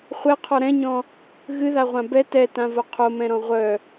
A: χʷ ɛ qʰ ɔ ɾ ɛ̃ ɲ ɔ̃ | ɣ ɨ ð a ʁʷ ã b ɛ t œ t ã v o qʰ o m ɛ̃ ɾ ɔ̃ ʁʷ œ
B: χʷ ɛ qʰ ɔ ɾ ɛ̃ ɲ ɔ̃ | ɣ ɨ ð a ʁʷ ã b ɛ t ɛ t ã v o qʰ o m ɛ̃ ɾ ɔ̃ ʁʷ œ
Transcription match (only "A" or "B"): B